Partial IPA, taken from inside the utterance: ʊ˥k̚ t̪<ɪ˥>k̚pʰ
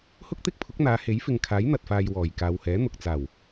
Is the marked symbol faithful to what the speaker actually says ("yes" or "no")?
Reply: yes